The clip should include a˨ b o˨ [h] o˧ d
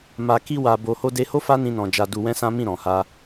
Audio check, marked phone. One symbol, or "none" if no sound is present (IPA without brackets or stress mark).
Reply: h